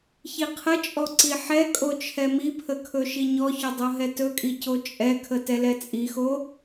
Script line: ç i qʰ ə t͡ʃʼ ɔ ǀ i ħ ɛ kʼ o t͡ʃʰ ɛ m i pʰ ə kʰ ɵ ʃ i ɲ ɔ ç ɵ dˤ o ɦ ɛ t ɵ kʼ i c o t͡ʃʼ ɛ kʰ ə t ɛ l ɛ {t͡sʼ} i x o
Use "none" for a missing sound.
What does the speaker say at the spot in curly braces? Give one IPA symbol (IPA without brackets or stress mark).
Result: t͡sʼ